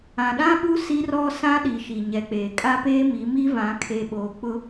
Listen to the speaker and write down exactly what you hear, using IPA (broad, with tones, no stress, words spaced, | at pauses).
ã˨ɗã˦ɓu˦ si˦rɔ˦ sã˦ ɗi˨ʃi˨ɲɛ˨k͡peː˨ kʼa˦peː˦mi˨˦ mi˦vã˨˦ kʰe˨ɓoː˨k͡pʊ˦